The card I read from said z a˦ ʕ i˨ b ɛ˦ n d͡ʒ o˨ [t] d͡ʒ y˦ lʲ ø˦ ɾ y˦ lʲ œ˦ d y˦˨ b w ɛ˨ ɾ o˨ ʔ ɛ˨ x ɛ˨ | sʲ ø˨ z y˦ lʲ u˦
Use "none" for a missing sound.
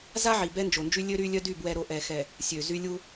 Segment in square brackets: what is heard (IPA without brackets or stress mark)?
n